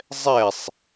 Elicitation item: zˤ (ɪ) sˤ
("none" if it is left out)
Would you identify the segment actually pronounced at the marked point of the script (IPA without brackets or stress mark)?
ɛ